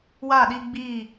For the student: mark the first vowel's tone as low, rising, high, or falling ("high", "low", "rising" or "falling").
falling